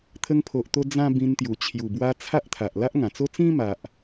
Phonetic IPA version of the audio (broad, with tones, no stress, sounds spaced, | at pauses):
t̪ʰ ə˧ ŋ pʰ o˨ ʔ t̪ o˧ d͡z ã˦ b ĩ˧ n t̪ j u˨˩ t͡ɕʰ j u˨˩ b w a˧ t͡sʰ a˦ ʔ t̪ʰ a˨ ʔ l a˦ ʔ ŋ ã˨˩ t͡s o˦ t͡s ĩ˦ m a˨ ʔ